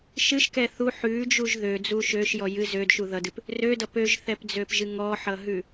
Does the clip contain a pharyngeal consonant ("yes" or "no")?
yes